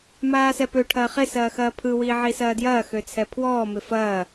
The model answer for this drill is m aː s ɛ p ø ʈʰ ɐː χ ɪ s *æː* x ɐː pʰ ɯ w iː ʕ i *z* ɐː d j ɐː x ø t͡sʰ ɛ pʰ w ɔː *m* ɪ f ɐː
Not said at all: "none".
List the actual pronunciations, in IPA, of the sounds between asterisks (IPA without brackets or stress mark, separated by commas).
ɐː, s, m